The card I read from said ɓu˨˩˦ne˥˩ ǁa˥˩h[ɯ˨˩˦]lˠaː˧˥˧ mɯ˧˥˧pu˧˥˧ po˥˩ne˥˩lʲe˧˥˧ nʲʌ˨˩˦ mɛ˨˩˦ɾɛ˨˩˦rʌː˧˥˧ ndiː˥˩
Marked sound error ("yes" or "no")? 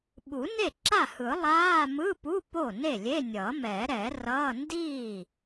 no